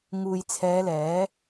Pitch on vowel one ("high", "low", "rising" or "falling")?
low